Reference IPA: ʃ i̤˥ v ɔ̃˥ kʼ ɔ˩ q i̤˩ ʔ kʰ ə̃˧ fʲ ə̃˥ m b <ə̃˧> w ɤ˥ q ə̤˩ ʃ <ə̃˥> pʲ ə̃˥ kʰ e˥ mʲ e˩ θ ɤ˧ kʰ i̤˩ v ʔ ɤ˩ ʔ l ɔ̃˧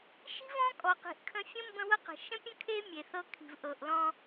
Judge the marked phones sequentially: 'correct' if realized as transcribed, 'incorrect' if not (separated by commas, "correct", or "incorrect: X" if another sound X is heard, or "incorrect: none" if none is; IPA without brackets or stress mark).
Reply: correct, correct